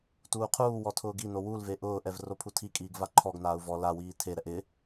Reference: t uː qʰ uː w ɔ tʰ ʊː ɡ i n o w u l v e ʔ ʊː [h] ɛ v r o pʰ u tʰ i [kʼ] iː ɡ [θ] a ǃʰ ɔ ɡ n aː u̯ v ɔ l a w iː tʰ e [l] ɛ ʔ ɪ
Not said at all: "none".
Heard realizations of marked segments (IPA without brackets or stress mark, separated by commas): ʔ, kʼ, v, ɾ